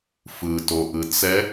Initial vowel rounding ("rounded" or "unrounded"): unrounded